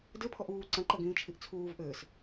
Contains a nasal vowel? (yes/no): yes